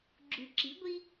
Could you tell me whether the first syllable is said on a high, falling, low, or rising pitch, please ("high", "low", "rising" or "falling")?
low